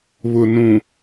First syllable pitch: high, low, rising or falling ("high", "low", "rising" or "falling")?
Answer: low